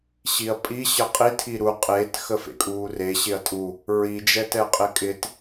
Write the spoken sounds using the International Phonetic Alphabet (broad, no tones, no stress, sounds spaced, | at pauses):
ɕ i ɐ̯ pʼ i ɕ ə qʼ i tʰ i ɾ u qʼ e t x ə f ḛ kʼ uː r e ɕ ɪ ɐ̯ tʼ u | ɹ i d͡ʒ ɛ t ɛ qʼ ɪ kʼ ɪ t